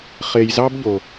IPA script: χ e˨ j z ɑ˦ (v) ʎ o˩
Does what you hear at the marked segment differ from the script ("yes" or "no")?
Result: yes